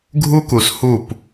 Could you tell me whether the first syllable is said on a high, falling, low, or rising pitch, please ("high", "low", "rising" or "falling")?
high